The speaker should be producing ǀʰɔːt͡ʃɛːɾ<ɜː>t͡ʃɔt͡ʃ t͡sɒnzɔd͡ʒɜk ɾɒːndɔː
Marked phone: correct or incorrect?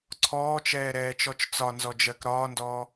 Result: incorrect